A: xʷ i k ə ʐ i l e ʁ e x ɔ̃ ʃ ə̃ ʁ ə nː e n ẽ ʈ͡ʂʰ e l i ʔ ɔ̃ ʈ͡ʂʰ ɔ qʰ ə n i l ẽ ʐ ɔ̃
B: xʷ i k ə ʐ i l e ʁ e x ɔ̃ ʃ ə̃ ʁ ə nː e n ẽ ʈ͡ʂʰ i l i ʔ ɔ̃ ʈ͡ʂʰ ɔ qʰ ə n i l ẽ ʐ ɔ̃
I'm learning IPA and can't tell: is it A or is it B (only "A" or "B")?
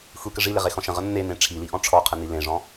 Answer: B